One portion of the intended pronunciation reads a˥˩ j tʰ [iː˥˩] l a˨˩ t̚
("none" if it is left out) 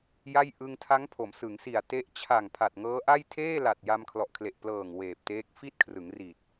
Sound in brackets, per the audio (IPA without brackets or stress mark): eː˥˩